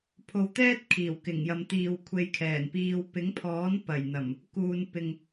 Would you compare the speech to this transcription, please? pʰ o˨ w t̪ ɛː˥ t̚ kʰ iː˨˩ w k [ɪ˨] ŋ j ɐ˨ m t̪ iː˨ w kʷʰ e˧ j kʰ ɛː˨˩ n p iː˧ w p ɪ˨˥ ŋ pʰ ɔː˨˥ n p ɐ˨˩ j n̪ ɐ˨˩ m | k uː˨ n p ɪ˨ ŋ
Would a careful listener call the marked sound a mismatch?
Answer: yes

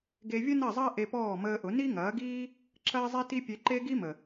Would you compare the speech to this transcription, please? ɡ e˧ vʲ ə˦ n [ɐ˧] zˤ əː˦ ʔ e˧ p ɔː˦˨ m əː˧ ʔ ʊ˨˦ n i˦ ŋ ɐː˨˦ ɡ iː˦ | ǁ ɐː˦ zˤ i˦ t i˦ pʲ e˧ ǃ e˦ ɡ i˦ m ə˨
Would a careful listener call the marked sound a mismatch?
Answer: yes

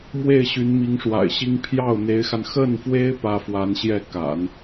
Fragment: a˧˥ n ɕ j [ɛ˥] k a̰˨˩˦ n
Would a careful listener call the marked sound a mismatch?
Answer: yes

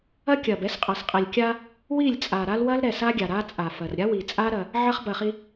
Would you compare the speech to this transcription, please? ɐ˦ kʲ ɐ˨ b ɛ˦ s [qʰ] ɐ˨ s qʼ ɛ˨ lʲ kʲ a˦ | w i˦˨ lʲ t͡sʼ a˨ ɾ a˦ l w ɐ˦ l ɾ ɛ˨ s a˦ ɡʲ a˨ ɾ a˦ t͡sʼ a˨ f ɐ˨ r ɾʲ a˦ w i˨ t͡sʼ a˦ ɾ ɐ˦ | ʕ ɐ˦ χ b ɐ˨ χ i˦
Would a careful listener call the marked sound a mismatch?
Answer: yes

